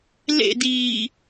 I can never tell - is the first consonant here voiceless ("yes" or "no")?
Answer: no